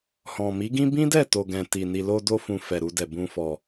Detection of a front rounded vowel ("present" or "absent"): absent